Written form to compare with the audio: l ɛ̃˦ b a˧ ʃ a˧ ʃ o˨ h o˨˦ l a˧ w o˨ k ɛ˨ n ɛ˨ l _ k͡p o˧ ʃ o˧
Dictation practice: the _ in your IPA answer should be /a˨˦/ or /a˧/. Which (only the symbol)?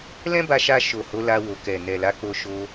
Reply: a˨˦